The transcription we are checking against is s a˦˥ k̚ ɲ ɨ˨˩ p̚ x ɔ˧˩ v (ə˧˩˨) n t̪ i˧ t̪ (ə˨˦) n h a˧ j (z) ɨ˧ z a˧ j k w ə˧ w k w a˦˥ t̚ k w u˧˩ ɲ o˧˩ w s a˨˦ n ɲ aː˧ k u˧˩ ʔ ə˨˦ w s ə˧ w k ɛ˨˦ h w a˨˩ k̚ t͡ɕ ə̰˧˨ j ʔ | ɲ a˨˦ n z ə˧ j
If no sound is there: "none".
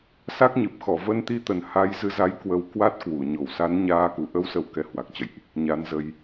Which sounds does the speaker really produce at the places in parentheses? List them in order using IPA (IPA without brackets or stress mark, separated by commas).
ə˧, ə˨˩, z